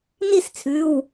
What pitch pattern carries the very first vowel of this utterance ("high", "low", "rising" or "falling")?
falling